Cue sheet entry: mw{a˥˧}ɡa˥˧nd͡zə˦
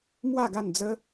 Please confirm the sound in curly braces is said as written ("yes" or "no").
yes